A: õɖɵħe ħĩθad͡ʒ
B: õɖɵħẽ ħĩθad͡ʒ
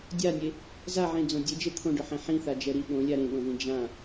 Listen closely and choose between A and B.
B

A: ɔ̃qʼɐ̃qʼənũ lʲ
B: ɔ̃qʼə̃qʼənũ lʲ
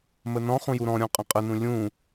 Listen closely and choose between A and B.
B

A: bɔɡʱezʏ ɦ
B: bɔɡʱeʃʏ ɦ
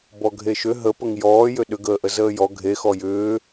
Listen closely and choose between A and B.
B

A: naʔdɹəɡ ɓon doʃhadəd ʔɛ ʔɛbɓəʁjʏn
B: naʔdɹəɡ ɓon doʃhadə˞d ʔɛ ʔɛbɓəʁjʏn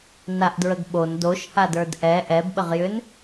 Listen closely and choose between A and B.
B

